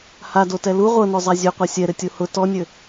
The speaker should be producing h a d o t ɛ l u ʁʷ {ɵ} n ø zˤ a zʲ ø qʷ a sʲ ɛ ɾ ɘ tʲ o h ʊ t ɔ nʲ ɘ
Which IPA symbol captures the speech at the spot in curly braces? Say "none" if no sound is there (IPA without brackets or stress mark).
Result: ɤ